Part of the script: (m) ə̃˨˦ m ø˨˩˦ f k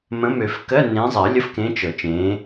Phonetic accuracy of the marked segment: correct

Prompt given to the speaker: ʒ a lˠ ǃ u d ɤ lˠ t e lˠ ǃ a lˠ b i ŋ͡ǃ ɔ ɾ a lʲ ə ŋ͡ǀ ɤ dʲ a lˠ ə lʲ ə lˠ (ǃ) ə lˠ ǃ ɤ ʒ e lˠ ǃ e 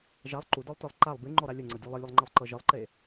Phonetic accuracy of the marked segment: incorrect: ŋ͡ǃ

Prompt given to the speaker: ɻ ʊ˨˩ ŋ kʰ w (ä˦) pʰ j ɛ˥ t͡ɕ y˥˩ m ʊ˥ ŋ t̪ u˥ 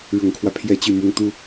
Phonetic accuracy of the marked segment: correct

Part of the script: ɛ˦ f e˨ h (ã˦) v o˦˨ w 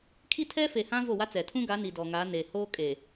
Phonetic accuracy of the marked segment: correct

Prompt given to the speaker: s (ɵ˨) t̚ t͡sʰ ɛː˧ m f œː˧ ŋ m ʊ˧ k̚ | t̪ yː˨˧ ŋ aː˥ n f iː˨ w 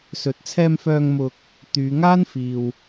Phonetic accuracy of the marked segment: correct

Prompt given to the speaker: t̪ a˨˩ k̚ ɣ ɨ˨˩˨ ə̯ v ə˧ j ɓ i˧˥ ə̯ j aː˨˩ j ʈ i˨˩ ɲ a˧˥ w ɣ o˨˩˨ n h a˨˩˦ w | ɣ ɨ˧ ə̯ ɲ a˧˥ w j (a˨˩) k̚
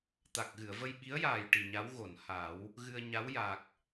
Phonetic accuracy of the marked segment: correct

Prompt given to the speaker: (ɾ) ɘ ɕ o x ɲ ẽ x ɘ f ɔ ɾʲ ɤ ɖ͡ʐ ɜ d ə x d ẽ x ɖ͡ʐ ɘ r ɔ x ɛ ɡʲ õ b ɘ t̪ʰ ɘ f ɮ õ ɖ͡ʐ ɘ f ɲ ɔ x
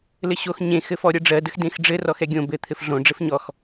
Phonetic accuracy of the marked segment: incorrect: l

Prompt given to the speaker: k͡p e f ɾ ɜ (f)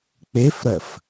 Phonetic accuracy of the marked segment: correct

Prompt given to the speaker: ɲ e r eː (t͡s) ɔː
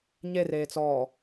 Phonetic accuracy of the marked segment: correct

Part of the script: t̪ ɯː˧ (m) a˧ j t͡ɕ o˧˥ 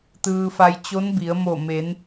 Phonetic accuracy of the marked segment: incorrect: f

